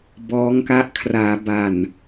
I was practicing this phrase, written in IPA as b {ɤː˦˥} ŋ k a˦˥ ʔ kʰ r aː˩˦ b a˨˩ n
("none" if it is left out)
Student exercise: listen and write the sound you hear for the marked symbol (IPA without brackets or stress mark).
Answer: ɔː˦˥